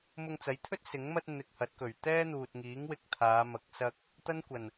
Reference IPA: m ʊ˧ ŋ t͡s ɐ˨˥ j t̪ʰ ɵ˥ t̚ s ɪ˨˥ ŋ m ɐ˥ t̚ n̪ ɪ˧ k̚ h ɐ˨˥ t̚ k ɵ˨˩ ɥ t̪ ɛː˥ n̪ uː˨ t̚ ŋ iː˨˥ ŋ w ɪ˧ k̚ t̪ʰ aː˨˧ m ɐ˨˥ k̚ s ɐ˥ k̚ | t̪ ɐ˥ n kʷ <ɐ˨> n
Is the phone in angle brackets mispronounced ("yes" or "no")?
yes